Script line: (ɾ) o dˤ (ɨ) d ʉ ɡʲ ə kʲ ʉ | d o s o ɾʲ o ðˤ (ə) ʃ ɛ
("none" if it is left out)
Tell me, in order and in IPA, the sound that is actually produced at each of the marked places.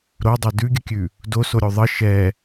ɾ, ɛ, ə

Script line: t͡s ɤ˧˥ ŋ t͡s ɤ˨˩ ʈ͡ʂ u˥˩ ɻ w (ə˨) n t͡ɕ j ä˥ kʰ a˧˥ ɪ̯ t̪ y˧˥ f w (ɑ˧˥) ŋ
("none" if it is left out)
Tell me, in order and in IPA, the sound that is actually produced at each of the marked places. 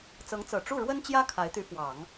ə˥, ɑ˨˩˦

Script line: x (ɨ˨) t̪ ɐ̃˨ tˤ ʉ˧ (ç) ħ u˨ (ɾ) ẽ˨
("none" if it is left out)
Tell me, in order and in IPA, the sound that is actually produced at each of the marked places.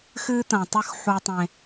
ɨ˦, x, tˤ

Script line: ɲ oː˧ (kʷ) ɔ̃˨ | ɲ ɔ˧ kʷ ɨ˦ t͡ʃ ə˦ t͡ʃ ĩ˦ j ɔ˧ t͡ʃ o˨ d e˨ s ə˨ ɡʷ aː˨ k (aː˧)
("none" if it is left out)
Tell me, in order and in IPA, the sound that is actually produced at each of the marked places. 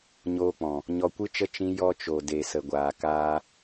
k͡p, aː˧

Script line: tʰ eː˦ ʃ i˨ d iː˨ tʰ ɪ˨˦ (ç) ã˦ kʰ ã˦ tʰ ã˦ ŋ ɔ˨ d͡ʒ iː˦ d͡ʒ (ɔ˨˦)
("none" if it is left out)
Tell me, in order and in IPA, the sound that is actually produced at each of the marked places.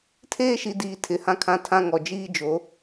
h, o˨˦

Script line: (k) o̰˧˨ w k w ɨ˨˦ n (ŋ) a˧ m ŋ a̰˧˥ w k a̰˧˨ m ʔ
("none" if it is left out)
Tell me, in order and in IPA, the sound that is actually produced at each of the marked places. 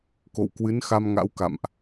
k, x

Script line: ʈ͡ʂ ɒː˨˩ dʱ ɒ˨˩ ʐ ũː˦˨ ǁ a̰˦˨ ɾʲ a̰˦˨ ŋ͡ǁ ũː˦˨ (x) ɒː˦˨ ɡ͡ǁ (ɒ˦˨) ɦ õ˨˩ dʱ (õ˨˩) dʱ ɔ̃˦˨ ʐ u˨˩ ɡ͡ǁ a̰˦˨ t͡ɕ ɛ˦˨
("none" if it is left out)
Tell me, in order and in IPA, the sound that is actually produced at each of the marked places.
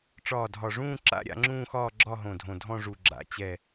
x, ɒ˦˨, õ˨˩

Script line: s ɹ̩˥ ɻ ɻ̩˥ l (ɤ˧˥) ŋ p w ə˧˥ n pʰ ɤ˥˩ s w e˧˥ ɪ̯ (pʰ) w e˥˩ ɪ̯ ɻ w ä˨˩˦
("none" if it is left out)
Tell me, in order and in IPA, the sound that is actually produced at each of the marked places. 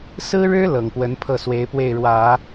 ɤ˨˩, p

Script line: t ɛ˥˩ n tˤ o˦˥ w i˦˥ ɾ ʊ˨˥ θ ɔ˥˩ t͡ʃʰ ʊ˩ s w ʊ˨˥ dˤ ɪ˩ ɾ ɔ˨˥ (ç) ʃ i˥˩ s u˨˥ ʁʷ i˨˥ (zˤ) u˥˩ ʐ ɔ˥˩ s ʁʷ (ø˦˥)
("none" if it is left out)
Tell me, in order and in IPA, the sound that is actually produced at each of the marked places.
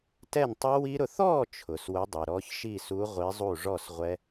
ç, zˤ, ɛ˦˥

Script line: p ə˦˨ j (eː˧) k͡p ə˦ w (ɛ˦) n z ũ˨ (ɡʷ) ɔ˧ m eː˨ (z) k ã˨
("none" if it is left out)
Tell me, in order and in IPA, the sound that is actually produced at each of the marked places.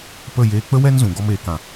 eː˧, ɛ˦, ɡ, none

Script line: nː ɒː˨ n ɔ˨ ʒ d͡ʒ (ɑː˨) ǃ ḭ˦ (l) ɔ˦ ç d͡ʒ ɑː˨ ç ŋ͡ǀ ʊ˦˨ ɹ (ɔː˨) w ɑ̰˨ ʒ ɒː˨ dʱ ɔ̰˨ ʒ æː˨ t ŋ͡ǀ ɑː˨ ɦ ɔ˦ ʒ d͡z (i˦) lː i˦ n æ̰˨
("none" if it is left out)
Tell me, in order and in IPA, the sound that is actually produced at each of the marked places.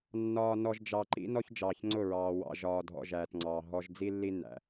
ɑ˨, n, ɑː˨, i˦

